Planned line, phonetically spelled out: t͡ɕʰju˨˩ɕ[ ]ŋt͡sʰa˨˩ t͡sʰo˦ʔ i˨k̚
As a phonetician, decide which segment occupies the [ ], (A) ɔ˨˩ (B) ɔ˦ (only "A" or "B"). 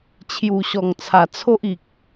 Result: A